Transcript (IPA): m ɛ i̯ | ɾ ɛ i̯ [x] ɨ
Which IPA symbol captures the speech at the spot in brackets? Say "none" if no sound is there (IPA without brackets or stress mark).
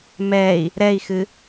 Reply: x